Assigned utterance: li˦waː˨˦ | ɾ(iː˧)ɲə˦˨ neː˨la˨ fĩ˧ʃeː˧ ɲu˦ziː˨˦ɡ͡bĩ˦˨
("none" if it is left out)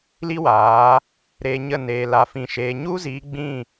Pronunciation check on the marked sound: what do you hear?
eː˧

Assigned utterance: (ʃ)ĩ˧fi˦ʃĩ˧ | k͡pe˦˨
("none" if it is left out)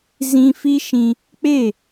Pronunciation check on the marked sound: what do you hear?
z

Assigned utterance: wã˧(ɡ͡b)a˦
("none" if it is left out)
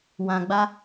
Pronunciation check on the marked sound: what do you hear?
ɡ͡b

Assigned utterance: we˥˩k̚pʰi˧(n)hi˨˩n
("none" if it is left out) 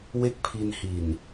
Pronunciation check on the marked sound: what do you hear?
n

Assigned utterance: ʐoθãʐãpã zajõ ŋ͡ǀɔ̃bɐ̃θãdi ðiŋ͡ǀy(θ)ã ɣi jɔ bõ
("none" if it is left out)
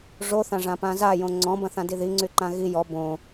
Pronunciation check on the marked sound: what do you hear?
ǃ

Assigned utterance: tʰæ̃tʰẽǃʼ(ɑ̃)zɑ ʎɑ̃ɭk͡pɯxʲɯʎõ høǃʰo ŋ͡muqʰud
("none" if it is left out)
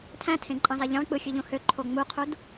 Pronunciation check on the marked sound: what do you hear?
ɑ̃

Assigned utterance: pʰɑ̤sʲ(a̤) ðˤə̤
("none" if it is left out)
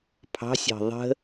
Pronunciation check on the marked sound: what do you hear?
ɑ̤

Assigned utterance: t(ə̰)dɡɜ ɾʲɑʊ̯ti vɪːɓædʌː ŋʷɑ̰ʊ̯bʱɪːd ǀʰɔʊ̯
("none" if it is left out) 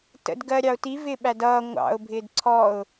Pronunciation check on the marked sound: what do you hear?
ə̰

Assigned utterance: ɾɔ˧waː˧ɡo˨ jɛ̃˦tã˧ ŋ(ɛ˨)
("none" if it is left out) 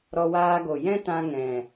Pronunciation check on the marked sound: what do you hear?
ɛ̃˨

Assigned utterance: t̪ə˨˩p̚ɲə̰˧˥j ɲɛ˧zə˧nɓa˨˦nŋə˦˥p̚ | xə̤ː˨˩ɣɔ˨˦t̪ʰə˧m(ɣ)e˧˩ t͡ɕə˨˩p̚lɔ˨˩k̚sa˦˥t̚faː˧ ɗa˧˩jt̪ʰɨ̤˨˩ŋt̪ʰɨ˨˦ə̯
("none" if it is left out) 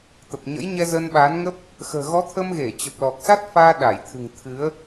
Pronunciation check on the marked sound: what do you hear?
ɣ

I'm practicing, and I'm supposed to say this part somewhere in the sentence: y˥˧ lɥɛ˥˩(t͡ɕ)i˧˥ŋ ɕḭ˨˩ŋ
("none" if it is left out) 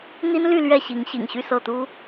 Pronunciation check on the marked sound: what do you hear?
ɕ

